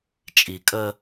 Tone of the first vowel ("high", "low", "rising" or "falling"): low